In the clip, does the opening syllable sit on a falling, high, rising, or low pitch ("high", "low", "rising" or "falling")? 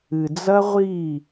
low